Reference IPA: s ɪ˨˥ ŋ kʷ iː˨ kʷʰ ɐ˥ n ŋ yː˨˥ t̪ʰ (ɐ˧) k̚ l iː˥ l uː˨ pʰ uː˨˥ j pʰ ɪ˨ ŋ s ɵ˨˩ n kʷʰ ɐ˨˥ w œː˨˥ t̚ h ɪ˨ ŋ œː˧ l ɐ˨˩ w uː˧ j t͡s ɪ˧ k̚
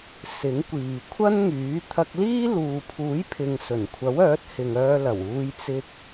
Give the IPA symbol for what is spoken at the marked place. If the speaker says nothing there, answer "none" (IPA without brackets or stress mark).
ɐ˧